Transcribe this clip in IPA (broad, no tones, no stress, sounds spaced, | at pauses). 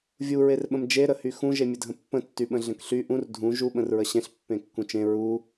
vʲ u ɹ e r ɓ ə̃ m d͡ʒ e ɾ ə h y x ũ ʒ e mʲ ə dʱ ə̃ pː ə̃ tː y ɓ ə̃ ɮ ə̃ k ɬ y ʔ ũ r dʱ ũ ʒ u ɓ ə̃ r ɹ ə ɕ ẽ ɬ pː ẽ kː ũ t͡ʃ ẽ ɹ u